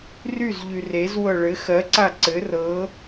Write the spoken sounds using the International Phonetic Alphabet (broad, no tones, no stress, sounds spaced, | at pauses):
r y z ʎ y r e z w ɤ ɭ ɘ x ɜ ǀ a ǀ ɘ r ɤ